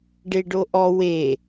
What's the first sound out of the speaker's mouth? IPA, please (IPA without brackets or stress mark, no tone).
ɖ